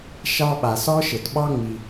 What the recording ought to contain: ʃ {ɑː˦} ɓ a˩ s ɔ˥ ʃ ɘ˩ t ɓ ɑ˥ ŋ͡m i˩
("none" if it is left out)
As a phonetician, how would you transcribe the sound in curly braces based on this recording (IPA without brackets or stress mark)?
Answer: ɑ˦